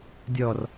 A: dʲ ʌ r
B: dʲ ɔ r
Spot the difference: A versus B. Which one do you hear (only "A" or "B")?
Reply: B